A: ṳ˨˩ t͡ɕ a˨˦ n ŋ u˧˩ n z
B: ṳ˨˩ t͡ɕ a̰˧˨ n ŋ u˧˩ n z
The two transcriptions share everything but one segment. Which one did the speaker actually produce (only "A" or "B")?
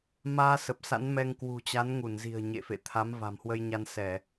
A